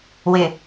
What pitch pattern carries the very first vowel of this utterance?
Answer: low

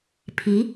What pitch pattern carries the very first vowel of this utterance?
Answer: rising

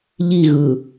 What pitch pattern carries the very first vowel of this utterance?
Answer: falling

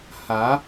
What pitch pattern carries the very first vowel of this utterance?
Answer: rising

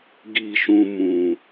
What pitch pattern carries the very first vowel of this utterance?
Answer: falling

